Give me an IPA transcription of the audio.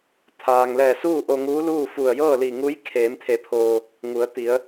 t̪ʰ aː˩ ŋ l ɛː˧˩ s uː˥˨ ʔ o˧ ŋ uː˧˥ l uː˥˨ f u˧˩ ə̯ j ɤː˥˨ l i˧˩ ŋ u˧˥ j kʰ eː˩˧ m t̪ʰ e˩˧ pʰ oː˩ | ŋ u˩˧ ə̯ t̪ i˩˧ ə̯

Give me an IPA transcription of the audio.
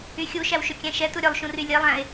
y xʲ u ʃ æ w ʃ ɵ kʲ æ̃ ʃ ɛ t u ɾʲ œ lˠ ʃ ũ r y lʲ e lˠ æ̃ e̯

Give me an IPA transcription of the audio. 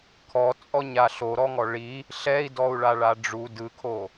kʰ ɔ t͡sʼ ɔ ɲ a ɬ o ɾ ɔ ŋ ɔ ɭ i | ɬ ɛ i̯ d ɔ u̯ ɭ a ɭ a ɖ͡ʐ u d ɯ kʰ o

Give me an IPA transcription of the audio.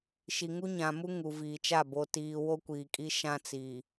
ʃ i˨ ŋ u˦ ɲ ã˨ m u˦ ŋ u˨ v iː˨ t͡ʃ a˦˨ b o˨ t iː˨ w o˦ kʷ iː˨ kʼ i˦ ʃ ã˦ t͡s iː˨

